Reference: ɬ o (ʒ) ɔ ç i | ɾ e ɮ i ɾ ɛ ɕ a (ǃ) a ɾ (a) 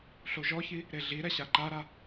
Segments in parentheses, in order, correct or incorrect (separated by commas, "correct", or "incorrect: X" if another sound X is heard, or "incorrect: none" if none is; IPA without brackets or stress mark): correct, correct, correct